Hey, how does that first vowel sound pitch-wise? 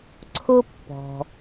high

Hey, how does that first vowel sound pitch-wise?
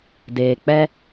low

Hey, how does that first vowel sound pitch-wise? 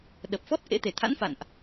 low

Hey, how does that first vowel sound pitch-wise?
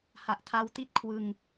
low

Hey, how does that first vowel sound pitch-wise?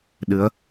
rising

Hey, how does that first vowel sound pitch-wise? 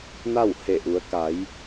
falling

